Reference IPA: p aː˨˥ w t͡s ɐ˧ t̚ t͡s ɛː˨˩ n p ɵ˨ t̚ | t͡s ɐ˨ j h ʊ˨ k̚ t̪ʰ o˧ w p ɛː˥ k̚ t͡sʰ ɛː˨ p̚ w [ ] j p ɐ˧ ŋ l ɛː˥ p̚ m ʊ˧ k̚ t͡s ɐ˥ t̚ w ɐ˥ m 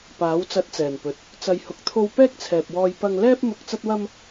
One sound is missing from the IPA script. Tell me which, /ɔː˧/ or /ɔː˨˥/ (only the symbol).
ɔː˧